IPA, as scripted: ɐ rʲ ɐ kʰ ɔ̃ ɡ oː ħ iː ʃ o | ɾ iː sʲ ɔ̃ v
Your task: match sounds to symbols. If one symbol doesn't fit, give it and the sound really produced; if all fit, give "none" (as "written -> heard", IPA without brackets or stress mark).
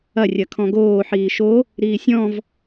none